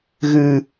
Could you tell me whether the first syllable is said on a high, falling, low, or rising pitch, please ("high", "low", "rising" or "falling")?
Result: low